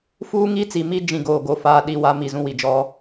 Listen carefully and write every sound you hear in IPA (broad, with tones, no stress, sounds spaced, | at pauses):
f uː˦ ŋ i˦ t͡s i˨ m i˦ d͡ʒ ĩ˦ ɡ oː˨ ɡ o˨ f aː˦˨ ɗ i˦˨ w a˦ m i˦˨ z ũ˦ w i˨ d͡ʒ ɔ˦